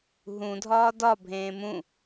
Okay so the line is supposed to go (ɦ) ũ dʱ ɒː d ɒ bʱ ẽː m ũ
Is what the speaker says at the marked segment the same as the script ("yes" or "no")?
yes